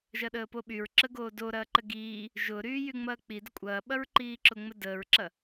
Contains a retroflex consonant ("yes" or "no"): no